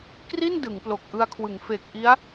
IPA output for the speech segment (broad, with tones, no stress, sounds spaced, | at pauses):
k r i˥˩ n d ɯ˩˦ ŋ p l o˨˩ k̚ ʔ ɯ˧ a̯ kʰ w ɯ˩˦ ŋ f e˨˩ k̚ ʔ i˦˥ a̯